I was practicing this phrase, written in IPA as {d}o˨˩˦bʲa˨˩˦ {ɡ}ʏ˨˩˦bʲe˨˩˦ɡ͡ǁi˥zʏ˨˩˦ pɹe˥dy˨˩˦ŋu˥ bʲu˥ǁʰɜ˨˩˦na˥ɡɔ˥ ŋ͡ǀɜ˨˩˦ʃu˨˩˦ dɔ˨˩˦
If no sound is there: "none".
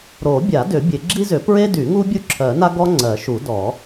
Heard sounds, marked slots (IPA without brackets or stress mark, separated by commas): ɾ, d